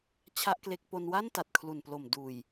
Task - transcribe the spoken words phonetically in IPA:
t͡ɕʰ a˥˩ ʔ k l e˦˥ k̚ p o˧ n w a˥˩ n t a˨˩ t̚ kʰ l u˨˩ n p l o˨˩ m d uː˨˩ j

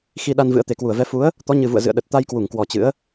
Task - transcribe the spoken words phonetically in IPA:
x i˧ ɗ a˧ n v ɨ̰˧˥ ə̯ t̪ e˨˩ k w u˧˩ ə̯ v ɛ˨˦ f u˨˦ ə̯ | t̪ ɔ˨˦ ɲ ɨ˨˩ v ṵ˧˨ ə̯ z ɨ̰˧˨ ə̯ ɗ ə˨˩ t̚ t̪ a˧ j k w u˧˩ ŋ k w ɔ˨˩ t͡ɕ ɨ̰˧˥ ə̯

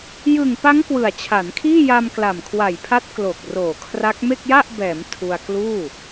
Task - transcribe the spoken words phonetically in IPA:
j ɯ˨˩ ŋ p a˦˥ ŋ k w ɯ˨˩ a̯ t͡ɕʰ a˩˦ n kʰ iː˥˩ j a˧ m k l a˨˩ m kʰ w a˨˩ j pʰ a˦˥ t̚ k l o˨˩ k̚ r oː˨˩ kʰ r a˦˥ k̚ m e˥˩ k̚ j a˥˩ ʔ b ɛː˩˦ m tʰ u˧ a̯ k l uː˥˩

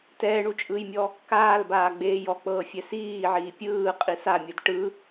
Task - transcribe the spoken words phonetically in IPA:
t ɛː ɳ u t͡ʃʼ ɯː j mʲ ɔ | k aː l b aː ɡ͡b eː j ɔ k͡p ɤː fʲ ɛ s iː ʕ iː pʲ ɯː qʼ i s a mʲ ɯ d ʈ ɯ

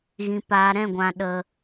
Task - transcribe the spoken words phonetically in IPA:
ɣ ĩ˨ p aː˨ ɾ ɛ̃˦˨ ɡʷ ã˨ ɗ ə˨

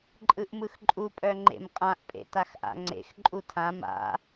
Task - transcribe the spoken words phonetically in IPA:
ǃʼ ɯ ʔ m ɯ x ǃʼ u pʼ œ ŋ͡ǃ ḛ m qʼ ã ʔ pʼ ḛ t a x ʔ a̰ ŋ͡ǀ ḛ x ǃʼ u tʰ ã m a̰

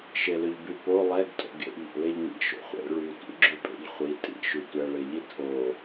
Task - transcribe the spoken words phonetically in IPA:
ʃ e l ʏ ʎ b y p o lˠ ɛ ɡ tʼ o̰ ɡ ḛ ʎ o̰ l e ʎ ŋ ḭ ʃ o̰ χʷ ḛ ɭ y tʷ ḭ ɡ͡ǁ y pʼ ḛ ʎ χʷ i tʼ ḭ ʃ y tʷ ɛ ɭ e ʎ i tʰ o

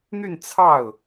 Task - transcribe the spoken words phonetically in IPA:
n̪ y˥˧ n t͡sʰ ɑ˥˩ ʊ̯

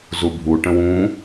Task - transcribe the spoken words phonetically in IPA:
z u bʱ u ʈ ə̃ w ũ

